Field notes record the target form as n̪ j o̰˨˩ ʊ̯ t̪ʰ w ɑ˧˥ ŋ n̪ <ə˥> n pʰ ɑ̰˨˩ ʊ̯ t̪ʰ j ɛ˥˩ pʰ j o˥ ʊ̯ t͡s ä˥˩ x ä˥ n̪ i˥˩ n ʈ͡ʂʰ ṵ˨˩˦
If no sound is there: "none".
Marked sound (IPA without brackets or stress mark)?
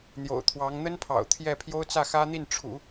ə˥